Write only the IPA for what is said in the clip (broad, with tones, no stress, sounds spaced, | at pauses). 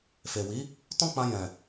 f e˨ w i˨˦ | t ɔ̃˦ k͡p ã˧ j ɛ̃˨